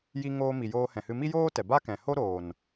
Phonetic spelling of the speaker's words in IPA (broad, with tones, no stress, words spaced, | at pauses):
ji˦ ŋoː˧mi˨ joː˧hɛ̃˨hɨ˧ mi˦joː˦tɛ˨ba˦ kɛ̃˨ ho˦ɾoː˨n